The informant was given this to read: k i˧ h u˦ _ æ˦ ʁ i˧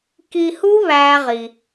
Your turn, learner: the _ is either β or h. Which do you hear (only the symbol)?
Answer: β